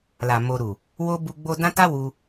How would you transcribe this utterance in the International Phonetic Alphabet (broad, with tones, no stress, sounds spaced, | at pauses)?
l a˨ m o˧ ɾ u˨ | w o˦ b u˧ ɡ͡b o˧ d ã˦ t a˦ w u˧